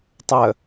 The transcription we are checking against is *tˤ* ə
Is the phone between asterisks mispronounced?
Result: no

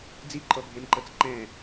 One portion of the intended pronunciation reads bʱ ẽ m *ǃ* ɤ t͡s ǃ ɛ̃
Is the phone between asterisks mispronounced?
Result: no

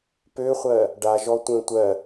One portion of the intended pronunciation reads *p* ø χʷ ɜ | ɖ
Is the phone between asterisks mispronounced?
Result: no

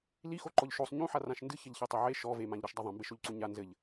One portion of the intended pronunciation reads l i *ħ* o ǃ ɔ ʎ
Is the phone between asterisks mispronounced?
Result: yes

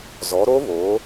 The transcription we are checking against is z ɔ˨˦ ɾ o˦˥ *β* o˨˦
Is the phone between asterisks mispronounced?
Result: no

